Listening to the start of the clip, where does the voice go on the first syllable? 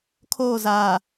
falling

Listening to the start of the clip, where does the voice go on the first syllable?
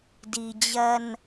low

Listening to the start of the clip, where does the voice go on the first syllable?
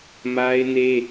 high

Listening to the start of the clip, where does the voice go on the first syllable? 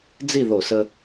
falling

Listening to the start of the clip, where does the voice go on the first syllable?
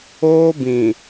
high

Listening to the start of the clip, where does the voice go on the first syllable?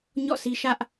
falling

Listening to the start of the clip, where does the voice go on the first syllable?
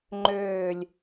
low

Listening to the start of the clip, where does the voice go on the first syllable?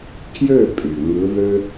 falling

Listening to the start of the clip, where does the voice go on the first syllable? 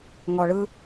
low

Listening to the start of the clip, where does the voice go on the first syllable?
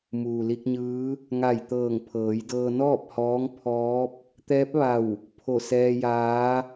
low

